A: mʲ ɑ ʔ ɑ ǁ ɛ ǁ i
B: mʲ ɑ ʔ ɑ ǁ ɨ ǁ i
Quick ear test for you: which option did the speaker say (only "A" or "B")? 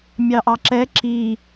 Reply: A